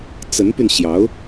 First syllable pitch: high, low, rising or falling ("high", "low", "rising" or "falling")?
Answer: rising